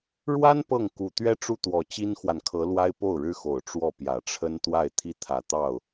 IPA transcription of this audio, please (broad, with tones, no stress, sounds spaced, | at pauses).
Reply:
ɻ w a˥ n p ɤ˥˩ ŋ k u˨˩ t̪ ɥ ɛ˥ ʈ͡ʂ u˥˩ t̪ w ɔ˨˩ t͡ɕ i˥ n x w a˨ n kʰ ɤ˧˥ l w a˥ ɪ̯ p o˥˩ ʊ̯ ɻ ɻ̩˥ x o˨˩ ʊ̯ ʈ͡ʂ w ɔ˥˩ p j ä˨˩ ʈ͡ʂʰ ə˥ n t̪ w a˥˩ ɪ̯ t̪ʰ i˥ t̪ʰ ä˨˩ t̪ ɑ˥˩ ʊ̯